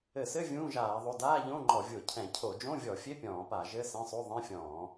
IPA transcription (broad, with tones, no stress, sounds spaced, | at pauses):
ɘ˧˩˧ s ɘ˧˥˧ vʲ ũː˧˥˧ ʒ aː˧˩˧ ðˤ o˧˥˧ d aː˧˥˧ ʎ õ˧˥˧ ŋ͡ǃ ɔ˧˩˧ vʲ o˧˩˧ cʰ ɛ̃˧˩˧ cʰ o˧˩˧ d͡ʒ õ˧˥˧ vʲ ɔ˧˩˧ fʲ e˧˥˧ pʲ ɔ̃ː˧˩˧ p a˧˩˧ ʒ ɘ˧˥˧ s ɛ̃˧˥˧ sˤ o˧˥˧ ðˤ ẽ˧˥˧ fʲ ɔ̃ː˧˩˧